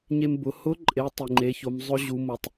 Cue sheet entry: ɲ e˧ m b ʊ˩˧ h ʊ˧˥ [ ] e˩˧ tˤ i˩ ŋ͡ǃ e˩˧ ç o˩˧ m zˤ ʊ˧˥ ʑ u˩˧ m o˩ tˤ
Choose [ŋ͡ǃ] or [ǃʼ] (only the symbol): ǃʼ